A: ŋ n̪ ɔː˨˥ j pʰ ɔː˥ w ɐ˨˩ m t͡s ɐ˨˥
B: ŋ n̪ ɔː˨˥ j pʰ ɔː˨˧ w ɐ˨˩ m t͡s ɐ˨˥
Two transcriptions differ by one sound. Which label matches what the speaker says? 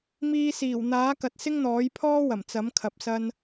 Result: A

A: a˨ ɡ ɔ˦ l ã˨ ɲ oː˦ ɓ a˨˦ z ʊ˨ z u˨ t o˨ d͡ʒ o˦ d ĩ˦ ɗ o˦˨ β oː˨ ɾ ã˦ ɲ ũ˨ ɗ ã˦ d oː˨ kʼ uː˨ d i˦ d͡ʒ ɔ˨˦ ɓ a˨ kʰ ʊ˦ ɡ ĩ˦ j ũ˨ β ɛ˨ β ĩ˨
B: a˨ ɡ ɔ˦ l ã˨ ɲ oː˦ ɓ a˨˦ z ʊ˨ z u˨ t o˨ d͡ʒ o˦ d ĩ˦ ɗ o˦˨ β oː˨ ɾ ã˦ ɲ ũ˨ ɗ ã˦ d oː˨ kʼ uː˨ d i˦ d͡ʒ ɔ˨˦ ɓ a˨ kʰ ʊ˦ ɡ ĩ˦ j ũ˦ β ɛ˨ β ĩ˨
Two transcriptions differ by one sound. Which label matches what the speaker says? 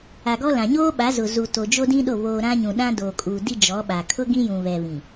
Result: A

